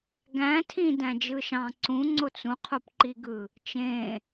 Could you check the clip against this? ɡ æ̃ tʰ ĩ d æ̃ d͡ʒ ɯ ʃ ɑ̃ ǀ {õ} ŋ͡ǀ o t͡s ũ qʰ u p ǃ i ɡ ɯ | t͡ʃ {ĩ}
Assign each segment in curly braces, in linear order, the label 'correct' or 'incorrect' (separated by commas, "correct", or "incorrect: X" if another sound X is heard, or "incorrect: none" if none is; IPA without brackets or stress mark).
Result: incorrect: ũ, incorrect: ẽ